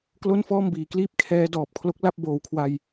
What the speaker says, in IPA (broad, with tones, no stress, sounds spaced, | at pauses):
k l o˥˩ n f ɔː˥˩ m b iː˩˦ k l iː˦˥ p̚ kʰ ɛː˦˥ d ɔː˨˩ p̚ kʰ l o˦˥ k̚ l a˥˩ p̚ b oː˨˩ w kʰ w a˧ j